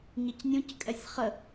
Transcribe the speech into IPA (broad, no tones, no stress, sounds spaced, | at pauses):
ɲ ɪ c nʲ ũ c kʼ ɛ sʲ χ ə